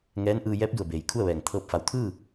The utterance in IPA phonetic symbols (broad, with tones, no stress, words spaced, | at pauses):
ŋɛː˧˥nʔɯː˧ jɛː˧˥p̚du˧˩ə̯beː˩j kʰu˥˨ə̯ʋɛː˧˩ŋt̪ʰɤː˧˥p̚ fa˩˧wt̪ʰɯː˥˨